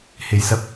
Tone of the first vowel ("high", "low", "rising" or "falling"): low